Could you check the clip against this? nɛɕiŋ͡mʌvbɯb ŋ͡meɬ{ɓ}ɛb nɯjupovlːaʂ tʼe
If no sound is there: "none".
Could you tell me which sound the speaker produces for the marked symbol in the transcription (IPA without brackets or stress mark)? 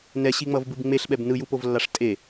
ɓ